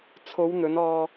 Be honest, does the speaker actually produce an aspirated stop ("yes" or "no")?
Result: yes